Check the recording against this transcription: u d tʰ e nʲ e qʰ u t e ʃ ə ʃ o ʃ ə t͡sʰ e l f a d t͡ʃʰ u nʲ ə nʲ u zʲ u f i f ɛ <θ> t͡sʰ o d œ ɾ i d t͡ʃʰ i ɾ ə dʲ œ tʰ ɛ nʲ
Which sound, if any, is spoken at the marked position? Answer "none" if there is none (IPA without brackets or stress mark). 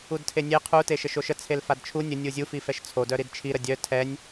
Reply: ʃ